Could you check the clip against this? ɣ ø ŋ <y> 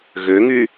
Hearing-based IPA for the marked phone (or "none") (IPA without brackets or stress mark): y